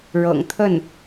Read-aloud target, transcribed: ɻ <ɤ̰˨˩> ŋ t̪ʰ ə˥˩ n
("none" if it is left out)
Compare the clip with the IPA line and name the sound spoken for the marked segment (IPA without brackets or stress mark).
ɤ̰˨˩